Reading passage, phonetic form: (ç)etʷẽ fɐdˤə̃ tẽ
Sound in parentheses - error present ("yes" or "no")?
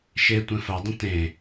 yes